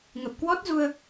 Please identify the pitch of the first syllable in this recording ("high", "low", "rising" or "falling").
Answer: low